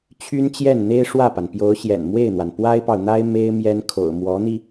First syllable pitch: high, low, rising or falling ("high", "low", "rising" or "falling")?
high